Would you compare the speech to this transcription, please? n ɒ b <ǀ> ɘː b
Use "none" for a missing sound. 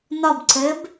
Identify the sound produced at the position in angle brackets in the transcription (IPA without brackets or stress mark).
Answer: ǀ